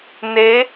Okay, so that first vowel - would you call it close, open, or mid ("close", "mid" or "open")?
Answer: mid